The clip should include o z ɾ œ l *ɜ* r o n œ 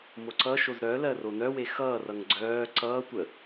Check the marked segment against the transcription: correct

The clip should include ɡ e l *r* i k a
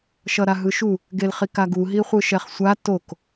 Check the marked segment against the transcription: incorrect: χ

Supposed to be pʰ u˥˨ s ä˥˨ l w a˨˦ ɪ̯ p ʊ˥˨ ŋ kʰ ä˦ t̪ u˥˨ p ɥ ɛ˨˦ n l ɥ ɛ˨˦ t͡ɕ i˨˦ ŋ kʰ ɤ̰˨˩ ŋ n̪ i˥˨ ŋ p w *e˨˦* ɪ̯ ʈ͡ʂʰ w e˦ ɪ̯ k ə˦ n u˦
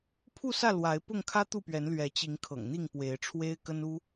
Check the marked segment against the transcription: correct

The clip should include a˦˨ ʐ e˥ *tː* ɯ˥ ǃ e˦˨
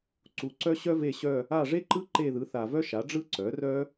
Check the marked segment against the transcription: incorrect: ǃ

